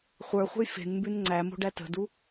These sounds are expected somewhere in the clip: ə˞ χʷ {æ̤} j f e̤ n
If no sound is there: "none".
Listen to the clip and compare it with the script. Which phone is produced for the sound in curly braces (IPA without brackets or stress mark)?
ə̤